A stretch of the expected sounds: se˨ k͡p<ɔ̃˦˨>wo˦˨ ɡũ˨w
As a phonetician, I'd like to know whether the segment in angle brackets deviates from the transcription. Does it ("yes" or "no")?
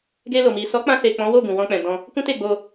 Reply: yes